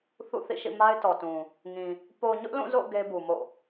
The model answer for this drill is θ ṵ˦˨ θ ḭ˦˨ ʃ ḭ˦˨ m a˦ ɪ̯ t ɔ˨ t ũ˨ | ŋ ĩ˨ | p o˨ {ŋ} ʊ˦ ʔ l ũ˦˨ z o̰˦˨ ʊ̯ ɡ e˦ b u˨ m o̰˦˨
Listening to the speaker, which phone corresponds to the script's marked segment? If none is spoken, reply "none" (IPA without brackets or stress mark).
ɲ